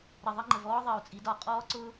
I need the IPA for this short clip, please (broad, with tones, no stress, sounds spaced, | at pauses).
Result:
ɾ ə˨˩ ðˤ ə˥ ŋ͡ǃ ə˨˩ v ɔː˥ ðˤ ɜ˨˩ u̯ t͡sʼ i˩˧ d ɒ˨˩ qʼ ɔː˥ ǀ ʊ˥